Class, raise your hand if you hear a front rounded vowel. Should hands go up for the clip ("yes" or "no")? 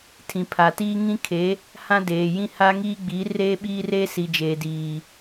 no